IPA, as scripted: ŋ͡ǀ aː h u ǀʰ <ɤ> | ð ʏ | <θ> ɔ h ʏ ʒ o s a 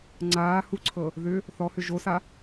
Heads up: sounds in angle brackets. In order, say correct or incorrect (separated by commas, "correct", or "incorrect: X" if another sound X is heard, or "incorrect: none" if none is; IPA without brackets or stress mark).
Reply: correct, correct